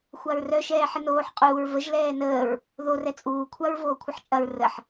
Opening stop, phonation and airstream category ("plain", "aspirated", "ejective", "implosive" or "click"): ejective